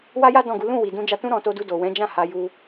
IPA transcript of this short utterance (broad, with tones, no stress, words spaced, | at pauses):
wa˦ja˦ dɔ̃˦˨ɡu˨˦ lũ˦˨ wi˨dũ˧ d͡ʒa˧tũ˦ ɾɔ̃˧to˧du˧ do˨wɛ̃˨˦d͡ʒã˦˨ ha˧ju˧